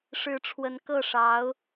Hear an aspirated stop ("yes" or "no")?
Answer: yes